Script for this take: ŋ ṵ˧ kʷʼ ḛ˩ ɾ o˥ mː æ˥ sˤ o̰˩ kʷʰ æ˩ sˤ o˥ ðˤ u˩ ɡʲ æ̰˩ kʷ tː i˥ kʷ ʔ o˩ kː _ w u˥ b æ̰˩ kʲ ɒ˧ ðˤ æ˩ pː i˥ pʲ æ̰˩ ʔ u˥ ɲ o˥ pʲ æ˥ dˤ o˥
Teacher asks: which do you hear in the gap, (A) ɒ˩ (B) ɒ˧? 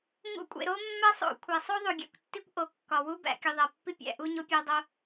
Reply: A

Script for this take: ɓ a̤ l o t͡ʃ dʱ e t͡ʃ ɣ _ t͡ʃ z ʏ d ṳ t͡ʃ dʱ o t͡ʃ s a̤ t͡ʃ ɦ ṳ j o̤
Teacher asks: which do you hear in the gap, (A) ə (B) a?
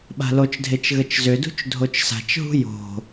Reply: A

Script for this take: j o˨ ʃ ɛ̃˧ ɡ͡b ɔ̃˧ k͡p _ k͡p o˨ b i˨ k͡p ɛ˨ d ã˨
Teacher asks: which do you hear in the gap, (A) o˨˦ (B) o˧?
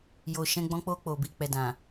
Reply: B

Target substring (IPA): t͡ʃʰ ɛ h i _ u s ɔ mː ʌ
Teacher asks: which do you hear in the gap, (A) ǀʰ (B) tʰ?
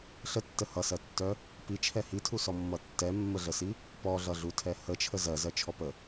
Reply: B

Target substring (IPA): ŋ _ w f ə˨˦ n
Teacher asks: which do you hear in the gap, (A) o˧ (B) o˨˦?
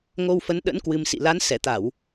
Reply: A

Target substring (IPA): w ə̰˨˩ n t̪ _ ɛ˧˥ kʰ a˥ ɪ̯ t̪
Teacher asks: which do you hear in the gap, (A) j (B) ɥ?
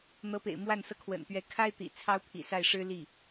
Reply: B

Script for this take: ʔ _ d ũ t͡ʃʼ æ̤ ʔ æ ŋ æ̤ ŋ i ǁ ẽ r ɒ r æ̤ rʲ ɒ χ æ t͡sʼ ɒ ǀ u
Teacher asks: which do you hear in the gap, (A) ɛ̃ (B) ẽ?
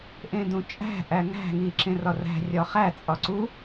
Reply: B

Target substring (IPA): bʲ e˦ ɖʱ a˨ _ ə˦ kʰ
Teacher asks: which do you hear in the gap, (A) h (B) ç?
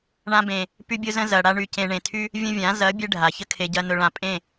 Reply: B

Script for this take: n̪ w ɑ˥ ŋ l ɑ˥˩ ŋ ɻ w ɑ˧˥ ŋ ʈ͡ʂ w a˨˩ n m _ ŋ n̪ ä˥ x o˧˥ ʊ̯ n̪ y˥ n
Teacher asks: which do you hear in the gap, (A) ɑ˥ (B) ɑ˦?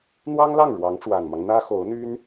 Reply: B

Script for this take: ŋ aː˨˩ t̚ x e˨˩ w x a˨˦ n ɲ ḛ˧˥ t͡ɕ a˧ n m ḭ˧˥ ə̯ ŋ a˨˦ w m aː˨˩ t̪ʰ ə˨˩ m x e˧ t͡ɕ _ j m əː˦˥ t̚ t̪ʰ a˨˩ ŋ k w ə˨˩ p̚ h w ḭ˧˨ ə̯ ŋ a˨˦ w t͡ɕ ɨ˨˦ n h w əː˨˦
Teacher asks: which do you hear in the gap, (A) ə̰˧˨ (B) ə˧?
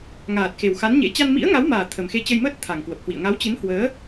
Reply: B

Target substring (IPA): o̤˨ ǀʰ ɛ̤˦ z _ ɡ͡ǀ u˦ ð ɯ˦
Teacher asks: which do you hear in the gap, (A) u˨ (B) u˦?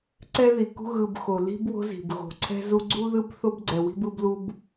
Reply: B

